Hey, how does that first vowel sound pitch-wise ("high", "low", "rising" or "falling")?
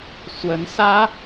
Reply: rising